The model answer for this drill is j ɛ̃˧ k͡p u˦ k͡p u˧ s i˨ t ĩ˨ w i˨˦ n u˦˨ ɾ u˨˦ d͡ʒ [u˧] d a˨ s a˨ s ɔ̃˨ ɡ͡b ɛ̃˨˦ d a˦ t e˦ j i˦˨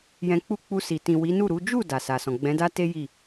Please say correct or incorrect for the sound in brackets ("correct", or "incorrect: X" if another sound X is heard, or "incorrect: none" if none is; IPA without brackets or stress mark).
incorrect: u˦˨